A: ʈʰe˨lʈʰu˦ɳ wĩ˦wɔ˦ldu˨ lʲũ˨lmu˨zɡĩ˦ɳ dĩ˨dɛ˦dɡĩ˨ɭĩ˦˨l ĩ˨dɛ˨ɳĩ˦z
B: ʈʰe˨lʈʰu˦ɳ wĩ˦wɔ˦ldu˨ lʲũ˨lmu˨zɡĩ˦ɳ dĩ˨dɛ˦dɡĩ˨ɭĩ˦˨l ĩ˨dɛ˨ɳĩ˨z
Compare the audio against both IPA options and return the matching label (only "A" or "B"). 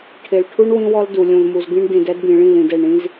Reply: A